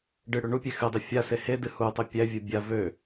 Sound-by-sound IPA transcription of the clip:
ɖɨɽø ɳupʲe xɨdˤø fʲase hedɨ hutˤe pʲævʲu bʲa vø

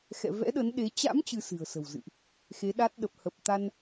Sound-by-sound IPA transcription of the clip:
xɛ̰˧˨vɛ̰˧˥ɗə˨˦nɗe˨˦ t͡ɕa̰˧˥m t͡ɕɨ˧sɨ̤˨˩ə̯sə̤˨˩wzɨ̰˧˨ʔ | xe˨˦ɗa˦˥t̚ɗə˨˩p̚ hə˨˩p̚t̪a˧n

